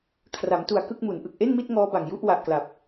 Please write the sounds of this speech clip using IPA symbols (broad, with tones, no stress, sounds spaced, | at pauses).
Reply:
kʰ r a˩˦ m t u˨˩ a̯ k ɯ˥˩ k̚ m u˩˦ n ʔ ɯ˨˩ k̚ ʔ e˥˩ n m i˥˩ t̚ ŋ ɔː˦˥ b a˨˩ ŋ j u˥˩ ʔ w a˨˩ ʔ k l a˨˩ p̚